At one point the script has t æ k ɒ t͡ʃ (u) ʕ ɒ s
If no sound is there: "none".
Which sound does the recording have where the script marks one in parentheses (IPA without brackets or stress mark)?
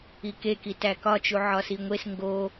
u